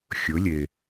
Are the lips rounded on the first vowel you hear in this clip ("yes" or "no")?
yes